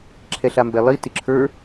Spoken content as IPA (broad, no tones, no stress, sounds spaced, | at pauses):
ǁʰ ɛ ɬ a m b ɛ lˠ i t ɪ ǁʰ ə˞